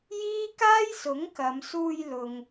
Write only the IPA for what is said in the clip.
j iː˥ k aː˥ j s ʊ˨˥ ŋ k ɐ˨˧ m s uː˧ j l ʊ˨ ŋ

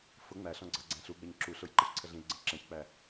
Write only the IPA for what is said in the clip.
f ʊ ŋ͡m æ ɬ ɔ̃ ɡ͡ǀ ɑ ɡ͡ǀ æ̃ ɬ u ɡ͡b ɛ ɲ ǁ u ɬ ʊ j ǃ ʌ ç ǀʰ ə ɮ ĩ l ɡ͡ǀ ə̃ ǁ ɛ̃ ç k͡p æ

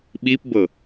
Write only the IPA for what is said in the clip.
ɓ i p b ɤ

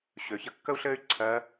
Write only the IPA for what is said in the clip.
ɕ ø˩ ç ə˧˥ kː ə˥ u̯ ɬ ɘː˥ y̯ ǀʰ ɜ˧˥

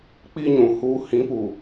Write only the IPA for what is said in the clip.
k͡p i˦ ɲ ũ˨ h uː˦ h ĩ˨˦ p u˨

